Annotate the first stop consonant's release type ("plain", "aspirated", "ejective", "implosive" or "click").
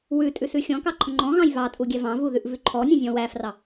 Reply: ejective